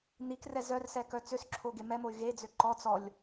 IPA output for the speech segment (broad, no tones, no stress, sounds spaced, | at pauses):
n̪ i k r ɛ z œ r s ɛ k œ t͡s ø s ǁʰ o ɡ e m ɛ m o y̯ ɣ e d͡z ø ǃ ɔ t͡s ɔ lʲ